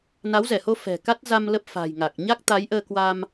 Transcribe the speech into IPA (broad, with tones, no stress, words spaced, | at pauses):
na˨˦wzɛ˧˩ho˧ fɛ̤˨˩ka˦˥t̚za˧m lə˦˥p̚fa̤˨˩jŋa˨˩k̚ ɲa˦˥k̚t̪a˨˦j ʔəː˧kwa˧m